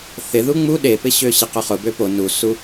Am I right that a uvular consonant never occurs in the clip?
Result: no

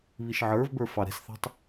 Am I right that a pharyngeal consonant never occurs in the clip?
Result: no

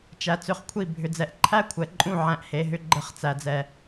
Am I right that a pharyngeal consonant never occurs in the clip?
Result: no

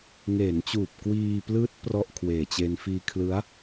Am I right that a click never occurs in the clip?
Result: yes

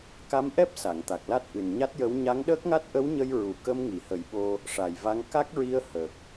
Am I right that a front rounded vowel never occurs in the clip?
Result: yes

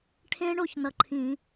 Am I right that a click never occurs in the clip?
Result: no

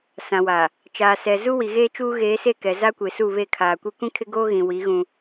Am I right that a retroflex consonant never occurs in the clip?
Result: yes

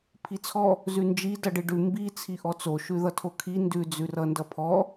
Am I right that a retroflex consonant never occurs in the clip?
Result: no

